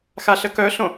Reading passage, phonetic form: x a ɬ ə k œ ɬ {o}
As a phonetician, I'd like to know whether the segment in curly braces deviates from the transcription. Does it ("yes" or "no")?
yes